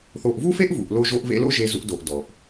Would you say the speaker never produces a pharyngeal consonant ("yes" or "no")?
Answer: yes